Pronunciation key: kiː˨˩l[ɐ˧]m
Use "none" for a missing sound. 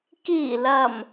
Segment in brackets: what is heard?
ɐ˨˩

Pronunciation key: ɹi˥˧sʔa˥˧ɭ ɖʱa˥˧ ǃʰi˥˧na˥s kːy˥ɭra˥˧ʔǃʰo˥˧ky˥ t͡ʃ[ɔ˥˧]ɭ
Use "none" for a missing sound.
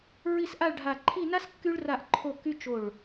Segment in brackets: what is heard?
o˥˧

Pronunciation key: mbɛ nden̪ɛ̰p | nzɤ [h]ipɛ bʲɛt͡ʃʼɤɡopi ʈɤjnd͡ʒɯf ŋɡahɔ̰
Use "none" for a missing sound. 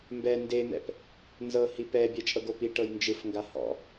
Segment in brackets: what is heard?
h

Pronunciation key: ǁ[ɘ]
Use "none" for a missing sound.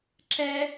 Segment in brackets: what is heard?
ɛ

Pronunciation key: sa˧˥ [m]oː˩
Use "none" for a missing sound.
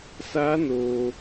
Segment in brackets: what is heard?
n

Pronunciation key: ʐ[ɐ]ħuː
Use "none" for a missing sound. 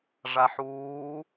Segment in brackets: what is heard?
a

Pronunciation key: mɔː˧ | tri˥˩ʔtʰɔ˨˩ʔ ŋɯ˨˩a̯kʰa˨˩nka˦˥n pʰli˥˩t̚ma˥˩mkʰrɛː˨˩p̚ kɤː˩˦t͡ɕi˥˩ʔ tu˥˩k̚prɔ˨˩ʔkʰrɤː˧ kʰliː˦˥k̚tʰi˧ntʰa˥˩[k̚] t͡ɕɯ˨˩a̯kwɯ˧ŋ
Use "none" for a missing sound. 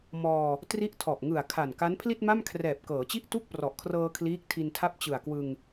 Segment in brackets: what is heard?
p̚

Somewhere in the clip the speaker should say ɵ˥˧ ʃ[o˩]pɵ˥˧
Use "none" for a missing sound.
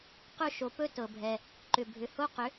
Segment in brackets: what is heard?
o˩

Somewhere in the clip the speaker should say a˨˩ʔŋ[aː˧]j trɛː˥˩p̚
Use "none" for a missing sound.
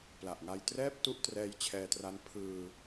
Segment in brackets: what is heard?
a˧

